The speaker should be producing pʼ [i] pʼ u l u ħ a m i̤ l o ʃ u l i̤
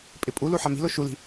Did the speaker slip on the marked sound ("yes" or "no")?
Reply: yes